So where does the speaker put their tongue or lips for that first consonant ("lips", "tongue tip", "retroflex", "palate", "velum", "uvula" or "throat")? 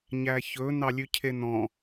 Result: palate